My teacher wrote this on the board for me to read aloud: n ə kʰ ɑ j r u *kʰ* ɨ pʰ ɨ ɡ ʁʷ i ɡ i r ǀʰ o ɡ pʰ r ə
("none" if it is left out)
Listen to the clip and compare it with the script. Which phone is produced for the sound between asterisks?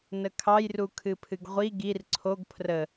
kʰ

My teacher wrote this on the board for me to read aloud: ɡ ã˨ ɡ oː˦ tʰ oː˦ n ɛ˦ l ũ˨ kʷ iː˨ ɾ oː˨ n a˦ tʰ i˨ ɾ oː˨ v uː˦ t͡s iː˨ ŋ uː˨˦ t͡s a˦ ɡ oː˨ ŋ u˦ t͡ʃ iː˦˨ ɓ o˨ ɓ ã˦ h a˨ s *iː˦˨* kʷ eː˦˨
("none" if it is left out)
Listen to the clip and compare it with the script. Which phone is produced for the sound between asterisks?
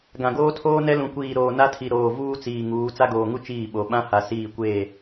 iː˦˨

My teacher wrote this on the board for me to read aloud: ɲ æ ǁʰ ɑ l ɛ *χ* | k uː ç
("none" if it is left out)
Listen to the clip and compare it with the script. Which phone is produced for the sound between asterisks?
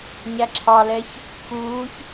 ç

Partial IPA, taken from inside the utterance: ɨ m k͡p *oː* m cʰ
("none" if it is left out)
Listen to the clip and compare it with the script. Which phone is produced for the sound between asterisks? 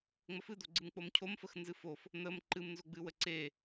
o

